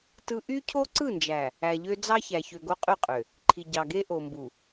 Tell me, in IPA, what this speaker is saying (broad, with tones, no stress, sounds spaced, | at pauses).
t ɯ˦ ʔ y˦ cʰ o˦ ǀ ɯ˦˨ n d͡ʒ æ˨ | æ˨ ʎ ø˦ d͡z ɑ˦ ç æ˨ ç ø˨ ɡ o˦ qʼ y˦˨ qʼ ø˨ | ǃʰ i˨ ɟ ɑ˨ ɡ e˦ ʔ o˨ m b u˨